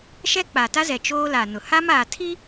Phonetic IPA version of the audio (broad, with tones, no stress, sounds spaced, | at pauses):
ʃ ɛ˦ k͡p a˨ t a˦ z ɛ˨ t͡ʃ oː˦ l a˨ n ʊ˨ h a˦ m aː˨ tʰ i˦